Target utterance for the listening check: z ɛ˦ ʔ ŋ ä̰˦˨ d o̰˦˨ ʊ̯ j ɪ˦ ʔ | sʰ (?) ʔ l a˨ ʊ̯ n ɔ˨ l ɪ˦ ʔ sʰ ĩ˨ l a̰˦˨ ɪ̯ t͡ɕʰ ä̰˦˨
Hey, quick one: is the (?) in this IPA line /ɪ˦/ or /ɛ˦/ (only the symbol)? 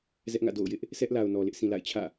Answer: ɛ˦